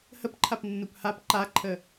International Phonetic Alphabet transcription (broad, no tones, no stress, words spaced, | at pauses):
həpǃʰap nːuphap ǃaǃʰə